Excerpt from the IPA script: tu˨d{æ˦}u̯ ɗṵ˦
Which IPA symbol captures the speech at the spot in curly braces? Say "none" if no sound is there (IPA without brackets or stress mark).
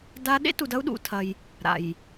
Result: ɐ˦